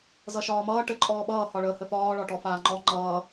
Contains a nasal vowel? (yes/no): no